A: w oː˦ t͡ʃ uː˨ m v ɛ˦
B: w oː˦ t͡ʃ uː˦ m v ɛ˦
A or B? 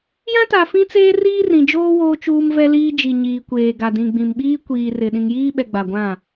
B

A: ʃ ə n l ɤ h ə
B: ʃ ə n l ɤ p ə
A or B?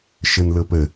B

